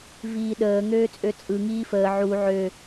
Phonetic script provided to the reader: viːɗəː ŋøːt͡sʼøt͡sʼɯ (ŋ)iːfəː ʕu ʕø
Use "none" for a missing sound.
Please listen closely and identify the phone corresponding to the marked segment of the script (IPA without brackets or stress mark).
ŋ